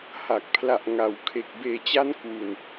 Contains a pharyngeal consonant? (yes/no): no